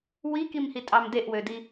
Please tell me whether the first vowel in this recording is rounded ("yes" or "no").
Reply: no